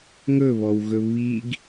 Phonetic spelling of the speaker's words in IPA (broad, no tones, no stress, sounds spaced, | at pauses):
ŋ ɵ β ɔ w ɣ ɵ β i ɡ